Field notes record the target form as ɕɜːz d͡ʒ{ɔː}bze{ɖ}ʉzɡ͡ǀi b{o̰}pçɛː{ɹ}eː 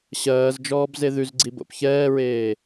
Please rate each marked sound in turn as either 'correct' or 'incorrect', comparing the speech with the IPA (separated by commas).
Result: correct, incorrect, correct, correct